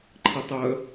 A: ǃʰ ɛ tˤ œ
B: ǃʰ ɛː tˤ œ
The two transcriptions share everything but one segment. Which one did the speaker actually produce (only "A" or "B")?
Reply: A